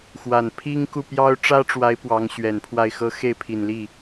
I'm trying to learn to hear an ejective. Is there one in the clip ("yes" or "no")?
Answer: no